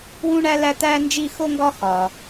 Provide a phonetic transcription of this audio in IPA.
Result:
wũ˥ɳæ˥læ˥t̪æ˥ nd͡ʒi˥˧xo˥ŋɡɒ˥ xɒ˧

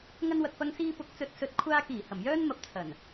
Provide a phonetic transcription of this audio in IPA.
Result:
ŋɐ˧nwɐ˨k̚pɐ˧ŋ siː˧pʊ˨˥k̚ t͡sɵ˧t̚sɵ˧t̚ kʷʰaː˧kiː˨˩ hɐ˨˩mjœː˥nmɐ˨˥p̚ t͡sʰɐ˨˩n

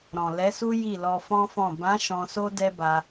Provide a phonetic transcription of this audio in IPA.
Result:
ɾɔ̃˨lɛ˨˦su˦ ji˦˨lɔ˧fɔ̃˦fɔ̃˦˨ bã˨˦ ʃɔ̃˧so˦ dɛ˦ba˧

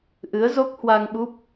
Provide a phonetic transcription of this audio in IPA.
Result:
ʔɨ˨˦ə̯zo˦˥k̚hwa˧ŋɓu˦˥p̚

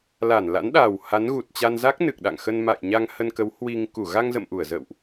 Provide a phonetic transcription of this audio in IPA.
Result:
la˧˩nla̰˧˥n ɗaː˨˩wha˨˦nɣu˨˩t̚t͡ɕa˧n za˦˥k̚nɨ˨˩k̚ɗa̰˧˨ŋ xə˧nma̰˧˨jɲa˧ŋ hə˧nkə˨˦w hwi˧ŋ ku˧˩ɣa˧ŋzə̰˧˨m ʔu˧˩ə̯zə̰ː˧˨wʔ

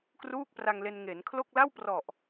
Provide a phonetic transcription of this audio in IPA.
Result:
kruː˥˩k̚pra˧ŋle˧n ŋe˩˦nkʰlo˥˩k̚ la˥˩wprɔ˨˩ʔ

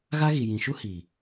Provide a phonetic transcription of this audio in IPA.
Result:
ɣa˦ɣi˨ jĩ˨ʃu˦ hiː˨

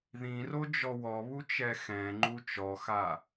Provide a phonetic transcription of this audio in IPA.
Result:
ðĩrod͡ʒɔ wɔβut͡ʃɛ xɛ̃ŋ͡ǃu t͡ʃɔxa

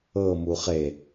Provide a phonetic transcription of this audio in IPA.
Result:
ɤmu χe

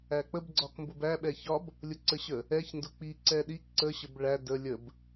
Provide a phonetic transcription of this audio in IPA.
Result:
æk͡pəbɡ͡ǀɒk mbʊbæɓɛ çɒb | lʲʊǀəɕə | ɛç ndʊk͡pi ǀɛɗi ǀəɕəb ɭæ də lʲəb

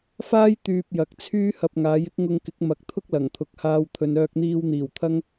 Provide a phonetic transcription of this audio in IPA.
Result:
faː˥j t̪yː˧p̚jɐ˨k̚ t͡sʰyː˥ hɐ˧p̚ŋaː˨˥jɪ˥k̚ŋʊ˧ŋ kɪ˨˥k̚mɐ˨˥k̚t̪ʰʊ˥k̚ lɐ˨˩ŋt̪ʰʊ˨˥k̚haː˧w t̪ʰɵ˨nœː˧k̚n̪iː˧wn̪iː˨˩w t̪ʰɐ˥ŋ

